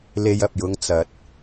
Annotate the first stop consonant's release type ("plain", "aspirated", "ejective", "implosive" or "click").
plain